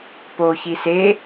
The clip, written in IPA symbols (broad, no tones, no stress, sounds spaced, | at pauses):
p o ç i s e